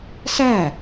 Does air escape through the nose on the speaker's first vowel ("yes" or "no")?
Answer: no